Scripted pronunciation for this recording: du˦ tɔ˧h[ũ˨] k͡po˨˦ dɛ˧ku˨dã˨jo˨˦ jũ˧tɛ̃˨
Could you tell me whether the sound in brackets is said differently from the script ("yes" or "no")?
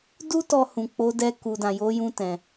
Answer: no